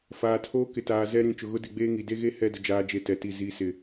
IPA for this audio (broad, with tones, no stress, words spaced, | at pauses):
faː˨ tʰoː˦kɪ˨taː˨ zɛ˦ ɾĩ˨ t͡ʃʊ˨ɣʊ˦dɪ˦˨ɡ͡beː˦ ŋi˨de˦ ɣe˦ hɛ˦˨dʊ˨ d͡ʒaː˦d͡ʒe˦tɛ˨˦ti˦˨ zi˨˦sɪ˨